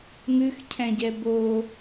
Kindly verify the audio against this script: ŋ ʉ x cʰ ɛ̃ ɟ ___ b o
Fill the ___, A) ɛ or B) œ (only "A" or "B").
A